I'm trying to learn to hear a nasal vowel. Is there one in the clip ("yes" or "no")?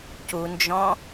yes